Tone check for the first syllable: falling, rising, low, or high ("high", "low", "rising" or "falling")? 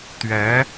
rising